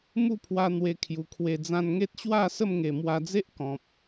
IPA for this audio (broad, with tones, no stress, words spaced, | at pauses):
mu˥˧pʰwa˧ n̪we˧kʰju˨˩kʰwe˧ d͡zã˧nŋe˦t̚ ɕwa˥˧ sə˥˧mŋe˨˩mwa˧d͡ze˦ʔ kɔ̃˨p̚